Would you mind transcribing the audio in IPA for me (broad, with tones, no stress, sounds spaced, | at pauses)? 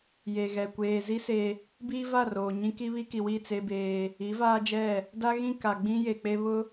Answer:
j e˨ ɣ ɛ˨ kʷ eː˨ z i˦ s e˦ | b iː˦ v a˦˨ r oː˨ ɲ ĩ˦ k i˦ β i˦ k i˨ w i˦˨ t͡s e˦ b eː˦ | i˨˦ v aː˦ d͡ʒ ɛ˦˨ | d a˦ ɣ ĩ˦˨ k a˨ ɡ͡b ĩ˦ j e˨ k͡p e˦ β ʊ˦